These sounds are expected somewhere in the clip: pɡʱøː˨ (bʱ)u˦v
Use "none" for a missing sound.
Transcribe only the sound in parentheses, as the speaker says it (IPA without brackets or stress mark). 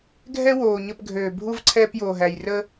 bʱ